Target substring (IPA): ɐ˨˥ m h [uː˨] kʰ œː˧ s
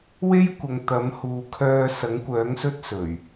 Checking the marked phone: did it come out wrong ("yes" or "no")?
no